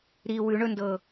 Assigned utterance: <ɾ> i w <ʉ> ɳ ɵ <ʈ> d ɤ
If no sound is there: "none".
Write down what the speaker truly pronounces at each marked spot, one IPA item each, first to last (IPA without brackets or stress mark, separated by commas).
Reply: ɾ, ʉ, n